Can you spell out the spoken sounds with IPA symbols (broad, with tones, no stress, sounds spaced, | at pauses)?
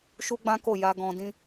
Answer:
ʃ u˦ ɡ͡b ã˦ k o˦˨ j a˧ ɡ ɔ̃˧ d ĩ˦